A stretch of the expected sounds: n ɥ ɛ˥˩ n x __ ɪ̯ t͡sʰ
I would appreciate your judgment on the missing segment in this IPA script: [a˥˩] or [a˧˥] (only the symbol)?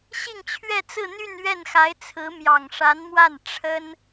a˧˥